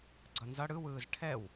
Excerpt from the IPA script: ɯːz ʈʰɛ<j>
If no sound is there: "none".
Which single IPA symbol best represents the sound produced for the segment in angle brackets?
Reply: w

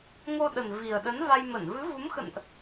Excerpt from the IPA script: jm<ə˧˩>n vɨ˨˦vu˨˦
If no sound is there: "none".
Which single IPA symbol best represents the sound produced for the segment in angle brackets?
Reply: ə˧˩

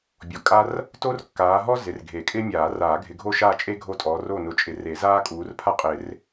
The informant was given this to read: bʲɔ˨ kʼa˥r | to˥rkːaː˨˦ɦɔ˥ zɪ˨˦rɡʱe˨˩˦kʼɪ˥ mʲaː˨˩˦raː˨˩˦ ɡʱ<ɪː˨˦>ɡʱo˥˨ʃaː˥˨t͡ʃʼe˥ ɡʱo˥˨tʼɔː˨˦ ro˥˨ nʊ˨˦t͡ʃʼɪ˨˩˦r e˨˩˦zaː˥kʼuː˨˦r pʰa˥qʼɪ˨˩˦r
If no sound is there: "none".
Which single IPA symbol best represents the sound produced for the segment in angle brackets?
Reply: ɪ˨˦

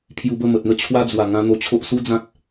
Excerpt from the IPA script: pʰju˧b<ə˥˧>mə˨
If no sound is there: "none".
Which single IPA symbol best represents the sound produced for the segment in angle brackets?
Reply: ə˥˧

